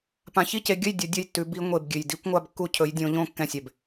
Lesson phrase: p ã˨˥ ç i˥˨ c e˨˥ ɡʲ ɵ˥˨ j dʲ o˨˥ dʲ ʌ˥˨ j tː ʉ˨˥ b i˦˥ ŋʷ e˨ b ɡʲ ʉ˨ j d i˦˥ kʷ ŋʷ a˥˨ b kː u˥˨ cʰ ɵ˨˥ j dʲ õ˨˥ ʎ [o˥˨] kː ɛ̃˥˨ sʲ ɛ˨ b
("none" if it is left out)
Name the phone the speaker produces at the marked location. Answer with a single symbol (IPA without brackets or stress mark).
õ˥˨